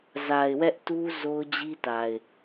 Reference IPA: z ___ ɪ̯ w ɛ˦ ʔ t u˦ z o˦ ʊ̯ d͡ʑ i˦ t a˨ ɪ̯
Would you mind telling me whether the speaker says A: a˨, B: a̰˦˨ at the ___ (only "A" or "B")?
A